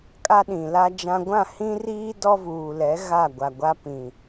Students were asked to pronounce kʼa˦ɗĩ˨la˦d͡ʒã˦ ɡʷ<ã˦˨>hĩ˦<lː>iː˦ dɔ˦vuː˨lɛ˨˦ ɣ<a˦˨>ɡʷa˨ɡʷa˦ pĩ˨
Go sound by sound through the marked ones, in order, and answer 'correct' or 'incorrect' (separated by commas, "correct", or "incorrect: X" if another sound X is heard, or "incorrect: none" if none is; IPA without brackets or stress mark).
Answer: correct, incorrect: r, correct